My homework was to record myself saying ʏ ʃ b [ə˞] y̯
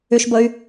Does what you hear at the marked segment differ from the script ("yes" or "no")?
yes